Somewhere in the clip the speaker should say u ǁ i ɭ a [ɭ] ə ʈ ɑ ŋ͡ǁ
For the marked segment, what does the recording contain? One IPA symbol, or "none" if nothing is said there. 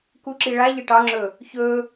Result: ʎ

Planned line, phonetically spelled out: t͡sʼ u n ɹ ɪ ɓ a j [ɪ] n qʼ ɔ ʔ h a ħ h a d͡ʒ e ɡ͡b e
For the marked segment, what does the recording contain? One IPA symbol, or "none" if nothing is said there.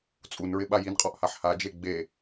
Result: i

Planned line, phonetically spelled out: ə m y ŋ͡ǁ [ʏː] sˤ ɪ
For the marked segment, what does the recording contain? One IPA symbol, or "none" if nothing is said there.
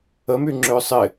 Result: ʏː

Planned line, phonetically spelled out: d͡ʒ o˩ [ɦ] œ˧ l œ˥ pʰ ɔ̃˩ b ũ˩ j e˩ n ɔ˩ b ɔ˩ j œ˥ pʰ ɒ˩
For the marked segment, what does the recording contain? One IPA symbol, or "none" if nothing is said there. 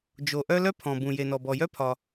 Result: ʔ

